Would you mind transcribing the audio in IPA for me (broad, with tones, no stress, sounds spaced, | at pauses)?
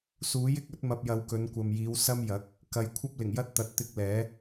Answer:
s uː˨˥ j ɪ˧ k̚ ɵ˨˥ t̚ m ɐ˨ p̚ j ɐ˨ w k ɵ˨˧ n kʷ ɐ˨ m j iː˨˧ w s ɐ˥ m j ɐ˨˥ k̚ | k ɐ˨ j kʷʰ ɐ˥ p̚ l ɪ˨˩ ŋ j ɐ˥ t̚ t̪ ɐ˨˥ t̚ t̪ ɪ˧ k̚ l ɛː˨˥